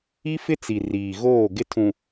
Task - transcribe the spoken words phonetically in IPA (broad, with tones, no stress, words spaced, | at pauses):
i˦fɪ˦t͡si˨ riː˨ɣoː˦˨ ɡɪ˦tʰũ˨